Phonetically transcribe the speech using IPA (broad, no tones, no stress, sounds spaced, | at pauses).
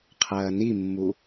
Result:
qʰ ɐː n i mː u